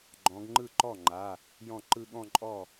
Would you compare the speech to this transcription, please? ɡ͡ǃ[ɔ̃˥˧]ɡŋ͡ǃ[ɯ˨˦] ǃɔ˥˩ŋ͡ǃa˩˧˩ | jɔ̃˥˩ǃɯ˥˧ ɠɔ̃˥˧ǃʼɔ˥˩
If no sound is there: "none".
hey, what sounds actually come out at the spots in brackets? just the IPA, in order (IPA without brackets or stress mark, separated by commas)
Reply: ɔ̃˨˦, ɯ˥˩